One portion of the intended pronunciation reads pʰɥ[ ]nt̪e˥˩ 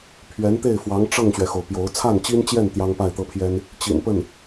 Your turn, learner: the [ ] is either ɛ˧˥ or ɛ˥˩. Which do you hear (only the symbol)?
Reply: ɛ˧˥